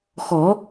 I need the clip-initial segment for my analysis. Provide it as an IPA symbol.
x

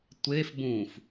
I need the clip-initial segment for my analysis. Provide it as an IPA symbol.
tʷ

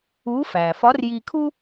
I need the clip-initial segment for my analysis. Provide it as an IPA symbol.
u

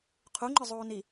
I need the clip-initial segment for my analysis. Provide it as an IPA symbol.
qʰ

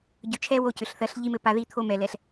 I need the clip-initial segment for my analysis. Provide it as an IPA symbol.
ɟ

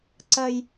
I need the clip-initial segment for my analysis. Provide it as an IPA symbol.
ǀ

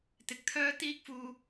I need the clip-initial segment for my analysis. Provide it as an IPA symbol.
t̪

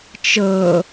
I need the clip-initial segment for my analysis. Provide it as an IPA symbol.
t͡ʃ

